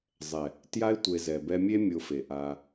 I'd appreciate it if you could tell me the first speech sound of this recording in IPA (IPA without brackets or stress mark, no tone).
zˤ